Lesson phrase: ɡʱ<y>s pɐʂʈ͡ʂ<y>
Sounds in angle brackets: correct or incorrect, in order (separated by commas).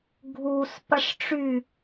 incorrect, correct